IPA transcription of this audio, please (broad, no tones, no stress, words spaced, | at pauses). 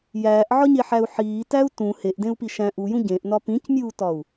jæːʔʕɒɲeħæu̯ ħiːtæu̯ tũ heʔdẽu̯pi ʃæ̃ʔ ujũ ɟẽʔnɒ pĩcmʲuːtɒu̯